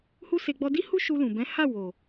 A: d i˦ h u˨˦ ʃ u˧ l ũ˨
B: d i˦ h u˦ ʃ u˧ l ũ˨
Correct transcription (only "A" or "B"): B